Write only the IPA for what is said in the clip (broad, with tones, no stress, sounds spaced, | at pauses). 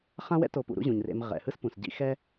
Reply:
χ ã˦ w ɛ̰˦ t o˨ p ṵ˨ ɾ ṵ˦ ʑ ũ˩ ɲ r ḛ˨ m ʁ ɛ̰˩ h ɯ˦ s p ũ˩ s ɟ ḭ˦ x ɛ˥